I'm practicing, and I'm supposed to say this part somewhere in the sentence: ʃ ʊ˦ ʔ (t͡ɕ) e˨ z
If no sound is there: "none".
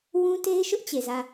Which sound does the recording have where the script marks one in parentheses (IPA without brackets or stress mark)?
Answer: t͡ɕ